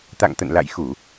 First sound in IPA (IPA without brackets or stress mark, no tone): t̪